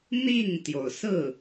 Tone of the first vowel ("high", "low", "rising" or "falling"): falling